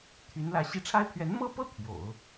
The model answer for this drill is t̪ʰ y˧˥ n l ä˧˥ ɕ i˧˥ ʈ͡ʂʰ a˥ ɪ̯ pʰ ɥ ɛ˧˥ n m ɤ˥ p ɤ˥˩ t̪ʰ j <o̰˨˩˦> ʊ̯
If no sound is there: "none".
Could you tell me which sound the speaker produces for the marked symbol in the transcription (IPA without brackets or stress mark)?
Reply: o̰˨˩˦